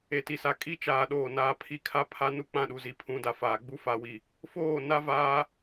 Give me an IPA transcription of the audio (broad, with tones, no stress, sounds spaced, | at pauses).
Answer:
e˨ t i˨ s a˨ kʼ i˦ t͡ʃ aː˨ ɗ oː˨ n aː˨ pʰ i˦ kʰ a˦ pʰ a˦ n u˦ k͡p ã˦˨ ɗ u˨ z i˨ pʰ ũ˨˦ d a˨ f aː˨ ɡ͡b u˦ f a˨ w i˨ | f oː˦˨ n a˦ v aː˦